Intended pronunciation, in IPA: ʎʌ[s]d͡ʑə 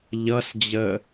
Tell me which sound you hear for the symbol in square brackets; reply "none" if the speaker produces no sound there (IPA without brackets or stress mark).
s